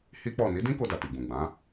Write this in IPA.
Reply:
h i˦ k͡p ɔ˦˨ n i˨˦ d ĩ˦ k o˧ d a˨ t i˨ ɡ͡b ũ˨ ɡ͡b ã˨˦

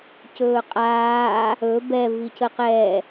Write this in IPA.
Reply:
c ɵː qʼ aː | ɵ b ɛ v i c ə q ɛ

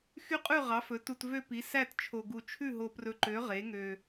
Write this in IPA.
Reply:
x y˦˥ qʼ ʉ˥˩ ʁ ɑ˩˥ f ɵ˩˥ t u˨ t v ø˥˧ p i˩˥ s æ˥˩ t t͡ʃʰ o˨ ɡ u˨ t͡ʃʰ ʉ˥˩ ɦ o˨ p r ɵ˨ ǃ ø˩˥ ʁ e˩˥ ŋ ø˨

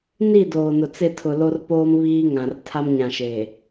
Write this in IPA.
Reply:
n i˦˨ d oː˨ n ʊ˨ t͡s ɪ˦˨ tʰ ʊ˨ l o˦ r p oː˦ m β iː˦ ŋ ã˨ r tʰ a˦ m ɲ ã˨ ʃ eː˨

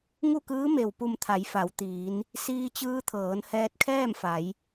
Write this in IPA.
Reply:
ŋ u˥˨ k ɯː˧˥ m e˩ w p u˧˩ m t̪ʰ a˩˧ j f a˩˧ w t̪ iː˩˧ n | s iː˧ t͡ɕ ɯː˧ t̪ʰ ɤː˩˧ n h ɛː˧ t̚ kʰ ɛː˥˨ m f a˩˧ j

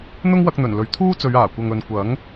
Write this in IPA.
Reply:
n̪ ʊ˥ ŋ w ɐ˧ k̚ n̪ ɵ˨˩ n l ɵ˨ ɥ t̪ʰ uː˥ t͡s ɵ˨˧ ɥ aː˨˩ kʷ ɐ˨ ŋ ɵ˨ n kʷ ɐ˨˥ ŋ

